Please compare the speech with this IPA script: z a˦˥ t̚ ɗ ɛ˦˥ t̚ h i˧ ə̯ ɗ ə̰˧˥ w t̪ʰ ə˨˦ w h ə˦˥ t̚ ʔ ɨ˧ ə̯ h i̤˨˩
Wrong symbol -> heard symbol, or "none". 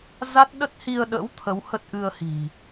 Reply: ɛ˦˥ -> ə˦˥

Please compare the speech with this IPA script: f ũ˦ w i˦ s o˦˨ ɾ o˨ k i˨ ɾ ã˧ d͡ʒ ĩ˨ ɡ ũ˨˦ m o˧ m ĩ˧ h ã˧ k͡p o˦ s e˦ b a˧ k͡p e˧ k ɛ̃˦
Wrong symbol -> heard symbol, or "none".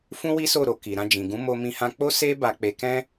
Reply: none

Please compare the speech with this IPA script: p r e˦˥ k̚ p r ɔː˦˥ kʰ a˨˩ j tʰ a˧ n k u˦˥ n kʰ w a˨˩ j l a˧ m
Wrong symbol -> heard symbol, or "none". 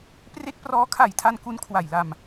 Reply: none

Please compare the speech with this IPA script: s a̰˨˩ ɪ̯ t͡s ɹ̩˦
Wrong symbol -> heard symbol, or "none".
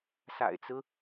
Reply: none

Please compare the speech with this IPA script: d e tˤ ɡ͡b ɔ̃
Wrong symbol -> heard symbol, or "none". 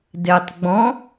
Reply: none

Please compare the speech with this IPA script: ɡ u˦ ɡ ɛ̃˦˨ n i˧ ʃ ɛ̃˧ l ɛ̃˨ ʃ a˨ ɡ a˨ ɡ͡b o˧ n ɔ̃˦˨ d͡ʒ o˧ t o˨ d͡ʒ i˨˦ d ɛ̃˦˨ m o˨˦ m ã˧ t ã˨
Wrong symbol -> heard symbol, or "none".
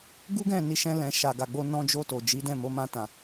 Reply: ɔ̃˦˨ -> ɔ̃˧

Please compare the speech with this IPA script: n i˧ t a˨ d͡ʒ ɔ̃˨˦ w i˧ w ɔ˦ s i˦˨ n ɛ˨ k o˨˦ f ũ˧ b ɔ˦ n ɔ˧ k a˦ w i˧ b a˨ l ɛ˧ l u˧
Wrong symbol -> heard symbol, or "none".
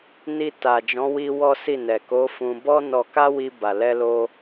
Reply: u˧ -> o˧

